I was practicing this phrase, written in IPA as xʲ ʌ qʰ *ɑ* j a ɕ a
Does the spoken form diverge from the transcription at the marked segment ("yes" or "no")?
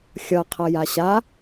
yes